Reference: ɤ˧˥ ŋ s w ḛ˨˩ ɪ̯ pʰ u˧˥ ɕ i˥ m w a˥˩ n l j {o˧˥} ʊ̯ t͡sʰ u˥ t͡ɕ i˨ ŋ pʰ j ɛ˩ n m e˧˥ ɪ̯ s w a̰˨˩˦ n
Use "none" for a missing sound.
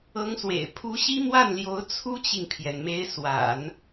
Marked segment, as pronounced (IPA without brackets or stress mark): o˧˥